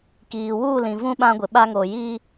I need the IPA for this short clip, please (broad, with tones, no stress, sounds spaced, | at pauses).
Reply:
k iː˨ w uː˦˨ l ĩ˨ v ũ˦ ɓ ã˦ ɡʷ ɪ˨ ɓ a˦ ŋ o˨ j iː˦